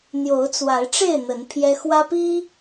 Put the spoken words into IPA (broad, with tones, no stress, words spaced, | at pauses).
n̪jo˨˦ʊ̯t͡swa˨˦ɪ̯ʈ͡ʂe˥˨ɪ̯ n̪ə˨˦n pʰjɛ˦ xwä˦pi˦